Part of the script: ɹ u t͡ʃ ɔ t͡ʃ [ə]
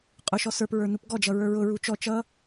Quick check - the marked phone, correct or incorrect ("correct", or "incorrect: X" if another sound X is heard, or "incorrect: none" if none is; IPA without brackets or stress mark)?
incorrect: ʌ